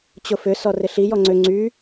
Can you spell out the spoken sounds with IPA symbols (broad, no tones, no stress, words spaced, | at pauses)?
t͡ɕʊfʏ sɔrɪɬi jɔŋ͡ǀø ŋ͡ǀy